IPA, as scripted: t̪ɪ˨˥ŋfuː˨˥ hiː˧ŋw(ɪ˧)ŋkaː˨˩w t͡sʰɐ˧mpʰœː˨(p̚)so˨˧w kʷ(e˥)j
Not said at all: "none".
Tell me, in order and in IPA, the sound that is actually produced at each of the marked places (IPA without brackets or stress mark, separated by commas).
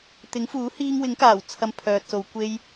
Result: ɪ˨˥, t̚, e˥